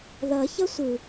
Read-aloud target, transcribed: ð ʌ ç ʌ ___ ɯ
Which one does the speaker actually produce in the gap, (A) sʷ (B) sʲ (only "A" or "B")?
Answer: A